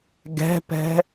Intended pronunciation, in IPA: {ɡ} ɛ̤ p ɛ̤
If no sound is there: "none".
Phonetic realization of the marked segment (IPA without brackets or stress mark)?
ɡ